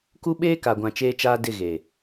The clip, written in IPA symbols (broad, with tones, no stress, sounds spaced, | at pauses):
k u˦ ɓ eː˦ k a˨ ɡʷ ã˨ t͡ʃ eː˦ t͡ʃ aː˦ d ɪ˦˨ ɣ eː˨